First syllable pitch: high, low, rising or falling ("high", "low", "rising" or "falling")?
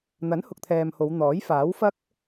rising